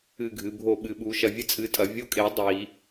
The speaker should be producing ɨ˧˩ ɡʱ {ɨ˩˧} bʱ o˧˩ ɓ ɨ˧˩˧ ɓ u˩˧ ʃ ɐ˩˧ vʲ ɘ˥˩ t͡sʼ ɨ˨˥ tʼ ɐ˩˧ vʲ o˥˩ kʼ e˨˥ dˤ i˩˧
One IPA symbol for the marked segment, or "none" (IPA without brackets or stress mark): ɨ˩˧